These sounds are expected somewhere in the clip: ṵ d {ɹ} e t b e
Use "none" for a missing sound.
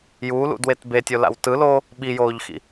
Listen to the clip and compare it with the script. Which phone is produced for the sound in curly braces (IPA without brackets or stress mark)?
w